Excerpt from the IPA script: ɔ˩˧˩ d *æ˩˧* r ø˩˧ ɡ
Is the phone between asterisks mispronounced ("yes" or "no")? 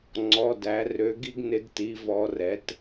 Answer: no